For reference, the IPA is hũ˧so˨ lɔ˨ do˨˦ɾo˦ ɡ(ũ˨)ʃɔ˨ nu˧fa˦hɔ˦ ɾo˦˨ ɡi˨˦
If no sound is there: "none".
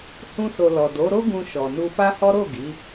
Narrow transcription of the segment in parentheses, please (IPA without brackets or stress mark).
ũ˧